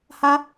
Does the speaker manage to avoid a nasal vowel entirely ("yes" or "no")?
yes